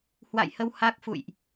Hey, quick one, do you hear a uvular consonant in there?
no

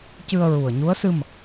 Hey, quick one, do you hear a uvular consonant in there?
no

